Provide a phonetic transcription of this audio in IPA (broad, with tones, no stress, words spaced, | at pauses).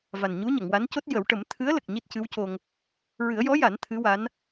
va˨˩nɲu˧˥ɲə˨˩˨ŋwa˧˥n co˦˥t̚jə˨˩˦wʈə˨˩˦m t̪ʰɨ˧˥ə̯lə˨˩k̚ ɲi˦˥t̚cɨ˧˥wco˧ŋ | ɹɨ˨˩˦ə̯jɔ˧˥ja˨˩˦n t̪ʰɨ˧˥wa˧˥n